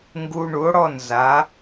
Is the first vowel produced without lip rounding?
no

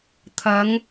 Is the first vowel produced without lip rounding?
yes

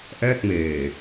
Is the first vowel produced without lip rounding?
yes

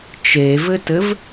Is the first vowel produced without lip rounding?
yes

